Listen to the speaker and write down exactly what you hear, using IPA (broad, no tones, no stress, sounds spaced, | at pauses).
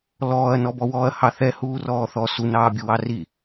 l ɔː ɐ̯ n ɔ b ɔ w ɔː ɐ̯ h ɑ θ ɛ h uː r ɔː θ ɔ s u n ɑː bʲ u w ɑ r i